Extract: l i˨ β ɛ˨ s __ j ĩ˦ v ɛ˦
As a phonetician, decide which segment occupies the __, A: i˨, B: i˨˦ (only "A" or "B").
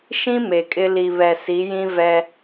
B